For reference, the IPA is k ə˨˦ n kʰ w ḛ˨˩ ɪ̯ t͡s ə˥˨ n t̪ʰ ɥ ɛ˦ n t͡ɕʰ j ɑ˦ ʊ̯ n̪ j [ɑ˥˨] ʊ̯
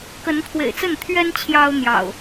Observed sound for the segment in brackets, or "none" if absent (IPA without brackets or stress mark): ɑ̰˨˩